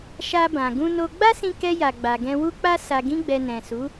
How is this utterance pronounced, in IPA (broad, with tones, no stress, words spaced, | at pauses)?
ʃa˧bã˨ ɡũ˧no˧ ɡ͡ba˦sĩ˧kɛ˧ja˨ ɡ͡ba˨ɡɛ̃˧wu˦k͡pa˦ sa˧ɡĩ˦ɡ͡bɛ˧ nɛ̃˨su˨˦